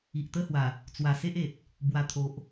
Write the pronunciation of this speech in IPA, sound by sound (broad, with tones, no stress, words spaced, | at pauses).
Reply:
i˨ʔt̪ə˦hwa˨˩ | t͡swa˨˩se˦ʔe˨t̚ | bwa˨˩t̪ʰo˨ʔ